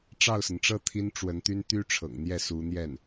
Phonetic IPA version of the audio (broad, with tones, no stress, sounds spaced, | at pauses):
ʈ͡ʂ ɑ˥˩ ʊ̯ s ə˩ n ʈ͡ʂ ɤ˥˩ t̪ʰ i˥ n ʈ͡ʂ w ə˧˥ n t̪ y˥ n t̪ y˥ ʈ͡ʂʰ ɤ̰˨˩ ŋ n̪ j ɛ˥˩ s u˧˥ n̪ j ɛ˥˩ n